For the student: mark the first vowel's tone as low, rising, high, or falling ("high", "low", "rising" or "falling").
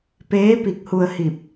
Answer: rising